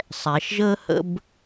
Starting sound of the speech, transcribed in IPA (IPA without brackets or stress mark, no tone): sˤ